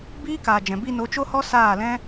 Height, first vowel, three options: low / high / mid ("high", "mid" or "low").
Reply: high